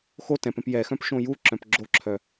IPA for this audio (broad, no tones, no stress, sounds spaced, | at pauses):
x o t ɛ̃ p ɛ̃ p j ɛ x œ̃ p ʃ õ j u ǁ œ̃ p ɡ͡ǁ o ǁʰ œ